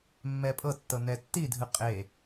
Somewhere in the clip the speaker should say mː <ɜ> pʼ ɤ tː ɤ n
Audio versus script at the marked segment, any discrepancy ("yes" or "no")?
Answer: yes